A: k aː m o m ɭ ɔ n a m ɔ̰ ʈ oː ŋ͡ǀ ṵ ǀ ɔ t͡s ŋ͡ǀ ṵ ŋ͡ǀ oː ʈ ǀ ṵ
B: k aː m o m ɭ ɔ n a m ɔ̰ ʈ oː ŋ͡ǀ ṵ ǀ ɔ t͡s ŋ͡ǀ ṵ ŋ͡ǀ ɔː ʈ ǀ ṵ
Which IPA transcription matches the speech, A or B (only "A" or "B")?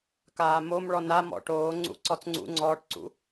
B